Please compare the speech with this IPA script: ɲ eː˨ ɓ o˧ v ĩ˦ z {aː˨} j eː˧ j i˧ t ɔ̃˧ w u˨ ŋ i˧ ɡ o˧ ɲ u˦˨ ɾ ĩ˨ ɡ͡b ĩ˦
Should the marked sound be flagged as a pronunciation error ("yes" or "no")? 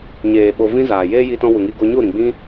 no